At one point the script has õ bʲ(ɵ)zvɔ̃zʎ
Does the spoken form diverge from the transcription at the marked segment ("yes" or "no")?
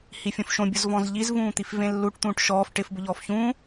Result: yes